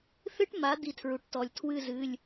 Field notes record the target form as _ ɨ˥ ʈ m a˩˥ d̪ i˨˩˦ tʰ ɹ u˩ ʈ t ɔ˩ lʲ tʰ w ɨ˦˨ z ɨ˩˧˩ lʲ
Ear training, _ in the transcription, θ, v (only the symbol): θ